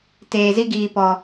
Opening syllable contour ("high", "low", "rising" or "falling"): low